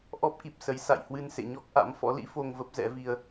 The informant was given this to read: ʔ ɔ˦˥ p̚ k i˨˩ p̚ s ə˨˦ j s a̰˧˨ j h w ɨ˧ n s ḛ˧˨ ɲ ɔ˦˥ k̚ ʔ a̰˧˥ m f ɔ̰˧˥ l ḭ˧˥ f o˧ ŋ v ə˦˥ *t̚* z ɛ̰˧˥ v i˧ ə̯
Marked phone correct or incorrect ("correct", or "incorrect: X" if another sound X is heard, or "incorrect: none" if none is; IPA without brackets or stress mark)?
incorrect: p̚